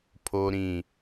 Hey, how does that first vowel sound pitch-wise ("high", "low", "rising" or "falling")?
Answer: low